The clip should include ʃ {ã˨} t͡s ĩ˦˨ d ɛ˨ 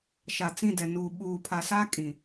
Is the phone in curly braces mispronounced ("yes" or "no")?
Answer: yes